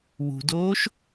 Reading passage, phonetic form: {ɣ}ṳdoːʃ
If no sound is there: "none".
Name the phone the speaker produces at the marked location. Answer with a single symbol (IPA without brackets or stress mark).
w